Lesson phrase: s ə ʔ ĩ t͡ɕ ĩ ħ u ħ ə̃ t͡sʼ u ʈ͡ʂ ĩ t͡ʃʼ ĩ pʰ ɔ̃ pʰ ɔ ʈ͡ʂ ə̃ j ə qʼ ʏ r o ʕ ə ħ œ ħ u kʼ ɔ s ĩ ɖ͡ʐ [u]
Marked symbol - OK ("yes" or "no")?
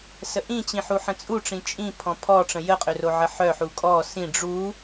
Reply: yes